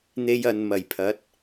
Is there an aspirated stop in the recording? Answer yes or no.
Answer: yes